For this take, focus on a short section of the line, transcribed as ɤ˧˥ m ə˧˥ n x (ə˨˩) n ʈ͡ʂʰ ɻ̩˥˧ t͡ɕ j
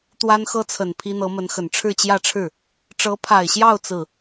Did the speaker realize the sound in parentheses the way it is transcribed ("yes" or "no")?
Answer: yes